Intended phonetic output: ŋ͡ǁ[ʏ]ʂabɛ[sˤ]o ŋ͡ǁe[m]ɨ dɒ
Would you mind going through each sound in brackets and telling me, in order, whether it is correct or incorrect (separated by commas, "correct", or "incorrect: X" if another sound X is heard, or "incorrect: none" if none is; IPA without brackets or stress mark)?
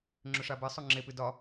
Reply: correct, correct, incorrect: p